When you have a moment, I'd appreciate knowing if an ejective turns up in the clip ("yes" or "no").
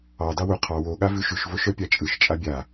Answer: yes